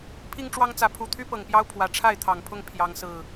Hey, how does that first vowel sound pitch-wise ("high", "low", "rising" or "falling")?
high